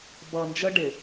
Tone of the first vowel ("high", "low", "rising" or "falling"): low